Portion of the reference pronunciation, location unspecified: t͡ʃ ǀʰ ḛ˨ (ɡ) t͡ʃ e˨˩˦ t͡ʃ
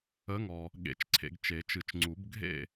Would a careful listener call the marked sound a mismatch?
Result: no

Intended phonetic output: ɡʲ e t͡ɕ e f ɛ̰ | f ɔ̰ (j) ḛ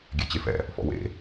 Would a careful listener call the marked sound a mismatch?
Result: yes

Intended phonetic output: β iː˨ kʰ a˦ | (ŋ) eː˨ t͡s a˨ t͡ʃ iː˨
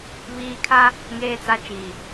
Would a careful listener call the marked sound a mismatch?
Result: no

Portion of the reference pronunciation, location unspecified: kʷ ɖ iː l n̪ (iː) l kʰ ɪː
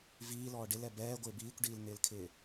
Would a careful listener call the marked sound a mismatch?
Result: yes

